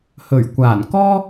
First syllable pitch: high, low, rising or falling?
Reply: low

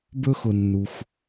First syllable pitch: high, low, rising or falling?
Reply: high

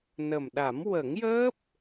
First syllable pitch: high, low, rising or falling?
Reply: low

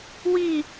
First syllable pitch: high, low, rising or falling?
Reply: falling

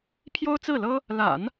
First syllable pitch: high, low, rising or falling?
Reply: high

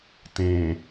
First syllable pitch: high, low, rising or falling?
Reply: low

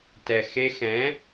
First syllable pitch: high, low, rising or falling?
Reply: low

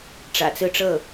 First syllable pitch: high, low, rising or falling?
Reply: low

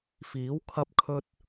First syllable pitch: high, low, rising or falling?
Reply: rising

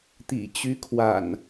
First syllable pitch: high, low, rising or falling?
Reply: low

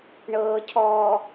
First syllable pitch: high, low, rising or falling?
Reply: low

